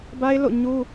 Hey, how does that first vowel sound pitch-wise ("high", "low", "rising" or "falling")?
high